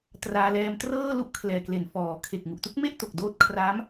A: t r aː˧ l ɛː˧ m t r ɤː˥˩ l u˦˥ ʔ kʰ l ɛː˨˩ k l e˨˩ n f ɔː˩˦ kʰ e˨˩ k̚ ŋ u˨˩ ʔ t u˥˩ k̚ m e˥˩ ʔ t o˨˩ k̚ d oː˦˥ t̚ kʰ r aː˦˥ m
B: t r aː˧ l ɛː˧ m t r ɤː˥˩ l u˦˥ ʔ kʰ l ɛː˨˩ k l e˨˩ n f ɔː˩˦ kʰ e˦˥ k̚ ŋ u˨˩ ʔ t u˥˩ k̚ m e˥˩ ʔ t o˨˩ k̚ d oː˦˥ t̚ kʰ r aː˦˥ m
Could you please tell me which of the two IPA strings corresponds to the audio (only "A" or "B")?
A